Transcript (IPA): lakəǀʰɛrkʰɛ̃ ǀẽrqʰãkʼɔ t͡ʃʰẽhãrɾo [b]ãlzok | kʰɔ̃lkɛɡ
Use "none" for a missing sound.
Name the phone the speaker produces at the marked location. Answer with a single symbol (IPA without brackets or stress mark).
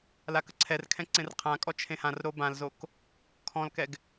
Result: b